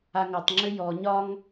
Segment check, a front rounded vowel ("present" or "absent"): present